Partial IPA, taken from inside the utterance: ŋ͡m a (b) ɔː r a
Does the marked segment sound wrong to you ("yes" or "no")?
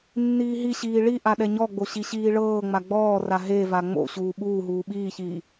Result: yes